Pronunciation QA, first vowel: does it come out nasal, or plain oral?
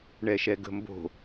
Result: oral